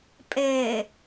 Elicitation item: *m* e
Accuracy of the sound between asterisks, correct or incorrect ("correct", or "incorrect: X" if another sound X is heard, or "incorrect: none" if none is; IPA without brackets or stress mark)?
incorrect: pʼ